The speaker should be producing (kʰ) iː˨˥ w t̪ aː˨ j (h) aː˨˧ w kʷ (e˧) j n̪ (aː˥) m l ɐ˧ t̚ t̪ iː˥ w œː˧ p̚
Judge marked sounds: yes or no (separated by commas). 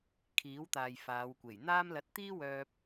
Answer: yes, no, no, yes